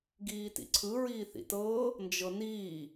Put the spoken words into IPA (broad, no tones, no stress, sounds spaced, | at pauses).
ɡ iː t ḭ ǀʰ ɯ ɹ iː θ ḭ t ɤː | n d͡ʒ ɤ n iː